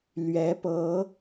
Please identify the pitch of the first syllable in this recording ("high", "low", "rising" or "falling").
rising